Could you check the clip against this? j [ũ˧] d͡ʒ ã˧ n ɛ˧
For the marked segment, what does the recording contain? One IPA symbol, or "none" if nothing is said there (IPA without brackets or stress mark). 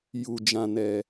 u˧